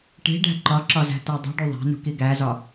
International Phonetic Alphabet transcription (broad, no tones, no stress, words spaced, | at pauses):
ʈi̤ɖæ̤ ǃɒǁɒzæ̤tæ dˤṳɖu ðˤæ̤nṳki ɡæzɒ